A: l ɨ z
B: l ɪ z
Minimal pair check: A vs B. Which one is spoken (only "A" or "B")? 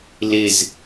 B